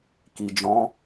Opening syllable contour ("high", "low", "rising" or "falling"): low